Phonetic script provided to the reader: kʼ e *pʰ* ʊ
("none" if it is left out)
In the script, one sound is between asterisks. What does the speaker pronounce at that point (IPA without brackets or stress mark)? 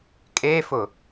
f